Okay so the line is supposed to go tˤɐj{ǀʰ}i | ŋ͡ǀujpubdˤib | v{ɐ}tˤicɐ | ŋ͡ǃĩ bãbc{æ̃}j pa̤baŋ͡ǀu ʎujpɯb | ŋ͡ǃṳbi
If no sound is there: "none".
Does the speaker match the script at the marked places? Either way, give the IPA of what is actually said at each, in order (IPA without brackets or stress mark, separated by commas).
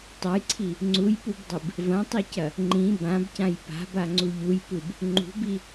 ǀʰ, ɐ̃, ã